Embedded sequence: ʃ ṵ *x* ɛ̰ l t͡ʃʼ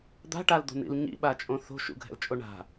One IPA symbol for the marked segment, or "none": ɡʱ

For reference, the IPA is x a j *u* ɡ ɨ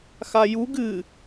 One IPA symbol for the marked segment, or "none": u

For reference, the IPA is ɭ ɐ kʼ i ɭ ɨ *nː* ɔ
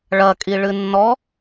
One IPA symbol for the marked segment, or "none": nː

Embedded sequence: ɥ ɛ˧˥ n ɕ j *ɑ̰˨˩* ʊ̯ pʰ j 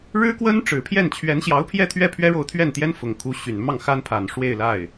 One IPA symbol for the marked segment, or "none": ɑ˧˥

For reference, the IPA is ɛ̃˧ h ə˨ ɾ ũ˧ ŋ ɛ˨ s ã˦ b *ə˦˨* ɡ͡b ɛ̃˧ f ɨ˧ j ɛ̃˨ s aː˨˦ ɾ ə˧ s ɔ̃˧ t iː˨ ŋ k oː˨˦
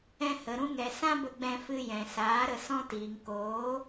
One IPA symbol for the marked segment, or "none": ə˧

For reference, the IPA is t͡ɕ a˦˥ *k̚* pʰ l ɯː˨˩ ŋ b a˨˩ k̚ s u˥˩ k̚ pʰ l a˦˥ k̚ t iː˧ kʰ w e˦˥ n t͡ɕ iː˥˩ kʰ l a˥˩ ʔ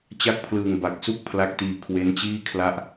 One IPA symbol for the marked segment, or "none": k̚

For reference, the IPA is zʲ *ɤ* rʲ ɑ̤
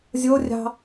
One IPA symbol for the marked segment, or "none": o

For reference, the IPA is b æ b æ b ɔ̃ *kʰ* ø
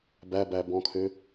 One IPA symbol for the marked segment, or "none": kʰ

